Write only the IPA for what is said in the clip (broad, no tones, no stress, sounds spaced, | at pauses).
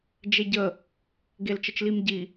d͡ʒ e ɟ ə | ɡ e l t͡ʃ ə t͡ʃ l i m ɟ i